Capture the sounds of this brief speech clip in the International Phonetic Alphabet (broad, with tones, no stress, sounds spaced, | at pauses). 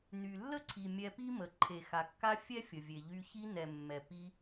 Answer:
n y˨ lː ə˦ ǀʰ i˨ mʲ ɛ˧ p i˦ m ə˨ ǃʰ e˨ x a˨ kː a˧ fʲ ɛ˦ fʲ ə˨ vʲ e˨ ʎ y˧ ç i˧ n ɛ˨ mː ɛ˨ p i˧